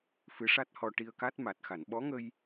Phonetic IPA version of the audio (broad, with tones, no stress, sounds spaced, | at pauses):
f ɨ˧˥ ʂ a˦˥ t̚ h ɔ˧ ʈ i˧ ə̯ k a˦˥ t̚ m a˨˩ t̚ x a˨˩˨ n ɓ ɔ˧˥ ŋ ə˧ j